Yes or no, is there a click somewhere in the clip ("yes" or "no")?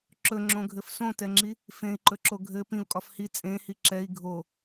yes